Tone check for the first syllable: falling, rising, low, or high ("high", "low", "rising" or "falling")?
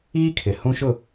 high